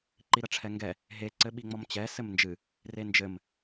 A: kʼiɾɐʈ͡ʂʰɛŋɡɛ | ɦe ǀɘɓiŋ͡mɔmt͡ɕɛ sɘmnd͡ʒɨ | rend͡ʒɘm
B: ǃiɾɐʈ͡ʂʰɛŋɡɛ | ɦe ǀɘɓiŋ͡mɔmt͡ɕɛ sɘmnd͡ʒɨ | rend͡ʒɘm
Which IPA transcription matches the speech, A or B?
B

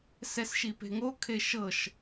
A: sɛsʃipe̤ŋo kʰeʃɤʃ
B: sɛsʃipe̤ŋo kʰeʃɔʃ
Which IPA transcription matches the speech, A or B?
A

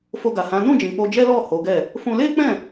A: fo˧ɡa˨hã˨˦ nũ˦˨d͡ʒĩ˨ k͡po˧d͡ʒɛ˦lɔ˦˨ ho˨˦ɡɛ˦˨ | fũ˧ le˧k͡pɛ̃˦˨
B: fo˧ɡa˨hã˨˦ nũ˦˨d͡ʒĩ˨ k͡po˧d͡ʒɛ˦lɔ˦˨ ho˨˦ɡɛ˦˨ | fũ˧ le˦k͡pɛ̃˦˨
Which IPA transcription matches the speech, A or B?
B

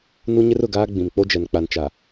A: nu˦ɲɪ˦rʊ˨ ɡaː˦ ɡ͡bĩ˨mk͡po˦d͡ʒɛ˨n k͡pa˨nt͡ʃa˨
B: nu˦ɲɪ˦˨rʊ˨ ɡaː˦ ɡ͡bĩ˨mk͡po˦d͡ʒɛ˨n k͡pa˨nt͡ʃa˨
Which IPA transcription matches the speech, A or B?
A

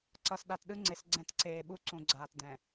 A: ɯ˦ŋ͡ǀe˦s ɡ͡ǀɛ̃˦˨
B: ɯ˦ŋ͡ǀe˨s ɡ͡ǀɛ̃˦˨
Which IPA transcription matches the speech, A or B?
B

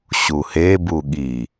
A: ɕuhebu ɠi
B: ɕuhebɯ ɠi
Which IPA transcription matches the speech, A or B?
A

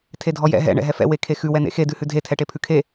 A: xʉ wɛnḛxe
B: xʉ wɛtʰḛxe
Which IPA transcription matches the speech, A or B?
A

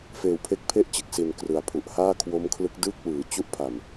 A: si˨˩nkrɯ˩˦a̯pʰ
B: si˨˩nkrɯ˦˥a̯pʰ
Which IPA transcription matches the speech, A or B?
A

